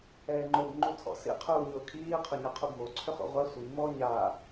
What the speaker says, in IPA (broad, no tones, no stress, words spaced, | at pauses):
ɛːŋ͡ǃob ŋ͡ǃutʰɔ̰sḭ qʰuːɲʊːkʰiː qʰʊɲɛqʰubmo ǀʰøχo̰ʁʷa sʷi mɔ ɲa